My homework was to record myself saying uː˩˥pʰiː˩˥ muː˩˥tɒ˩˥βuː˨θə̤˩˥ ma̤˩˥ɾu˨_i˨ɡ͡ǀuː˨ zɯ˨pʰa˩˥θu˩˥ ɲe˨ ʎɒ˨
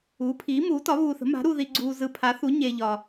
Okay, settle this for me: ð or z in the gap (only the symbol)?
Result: ð